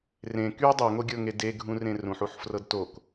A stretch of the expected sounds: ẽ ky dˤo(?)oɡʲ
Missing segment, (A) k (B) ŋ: B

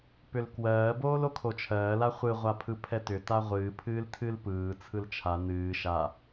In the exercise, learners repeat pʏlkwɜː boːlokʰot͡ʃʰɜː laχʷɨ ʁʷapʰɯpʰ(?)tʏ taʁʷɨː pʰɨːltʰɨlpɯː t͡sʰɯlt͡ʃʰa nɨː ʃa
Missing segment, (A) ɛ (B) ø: A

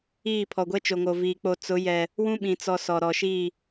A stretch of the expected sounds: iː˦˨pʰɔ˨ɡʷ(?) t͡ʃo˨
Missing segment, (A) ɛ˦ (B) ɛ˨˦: A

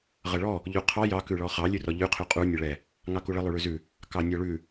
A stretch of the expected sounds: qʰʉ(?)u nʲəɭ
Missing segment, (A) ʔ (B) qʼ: B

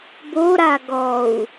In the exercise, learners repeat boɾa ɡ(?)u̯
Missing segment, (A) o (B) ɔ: B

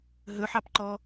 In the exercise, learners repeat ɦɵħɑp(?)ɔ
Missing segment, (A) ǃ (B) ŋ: A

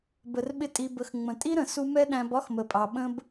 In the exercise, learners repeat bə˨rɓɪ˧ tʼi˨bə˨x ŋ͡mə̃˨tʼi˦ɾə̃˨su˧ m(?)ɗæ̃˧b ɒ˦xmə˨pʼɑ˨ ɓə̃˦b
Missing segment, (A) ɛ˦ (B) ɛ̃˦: A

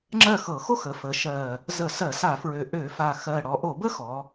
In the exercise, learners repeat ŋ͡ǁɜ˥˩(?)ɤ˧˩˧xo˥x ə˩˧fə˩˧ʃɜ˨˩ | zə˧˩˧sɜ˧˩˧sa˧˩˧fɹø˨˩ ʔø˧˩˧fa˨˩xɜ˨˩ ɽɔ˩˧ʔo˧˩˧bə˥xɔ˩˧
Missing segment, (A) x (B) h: A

